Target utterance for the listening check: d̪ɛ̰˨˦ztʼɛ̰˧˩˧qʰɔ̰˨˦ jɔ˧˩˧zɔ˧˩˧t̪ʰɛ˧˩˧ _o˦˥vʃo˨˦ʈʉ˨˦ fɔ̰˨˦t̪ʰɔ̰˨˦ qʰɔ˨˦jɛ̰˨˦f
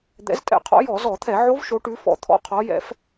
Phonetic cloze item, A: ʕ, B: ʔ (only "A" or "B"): A